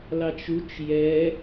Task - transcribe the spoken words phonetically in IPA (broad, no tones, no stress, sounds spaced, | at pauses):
l ɑ t͡ʃ u t͡ʃ j ɛ